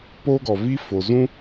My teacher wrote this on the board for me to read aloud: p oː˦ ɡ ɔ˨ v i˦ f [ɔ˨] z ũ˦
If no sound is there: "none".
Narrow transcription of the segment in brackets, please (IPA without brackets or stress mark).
o˨